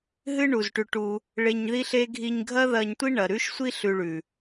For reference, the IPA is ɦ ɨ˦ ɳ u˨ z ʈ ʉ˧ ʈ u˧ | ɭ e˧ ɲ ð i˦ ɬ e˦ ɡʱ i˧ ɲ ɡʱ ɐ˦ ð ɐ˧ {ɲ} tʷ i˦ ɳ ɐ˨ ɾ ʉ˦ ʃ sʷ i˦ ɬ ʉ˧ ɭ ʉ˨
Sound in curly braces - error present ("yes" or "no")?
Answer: no